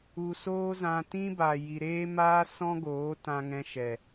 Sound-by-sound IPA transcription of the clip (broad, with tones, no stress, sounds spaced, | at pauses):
u˨ s oː˦ z ã˧ t ĩ˦ b a˨ j i˨ ɾ eː˦ m aː˦ s ɔ̃˦ ɡ oː˨˦ t ã˧ ŋ ɛ̃˧ ʃ ɛ˨